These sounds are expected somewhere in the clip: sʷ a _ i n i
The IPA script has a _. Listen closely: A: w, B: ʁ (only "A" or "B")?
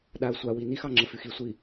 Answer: A